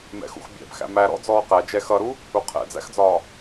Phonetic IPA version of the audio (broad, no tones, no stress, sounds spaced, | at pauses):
m ɛ̰ x ṵ x bʲ æ̰ b x æ̰ m æ ɾ ɔ̰ d͡z ɔː q æ d͡ʒ ɛ x ʌ ɾ u | u qʰ ɛ̰ d͡z æ̰ x d͡z ɒː